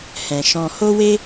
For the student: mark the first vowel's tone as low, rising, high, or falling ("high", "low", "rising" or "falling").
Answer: low